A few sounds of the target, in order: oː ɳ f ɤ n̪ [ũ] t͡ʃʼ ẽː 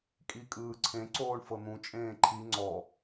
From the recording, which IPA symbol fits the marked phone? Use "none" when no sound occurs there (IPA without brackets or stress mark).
ũ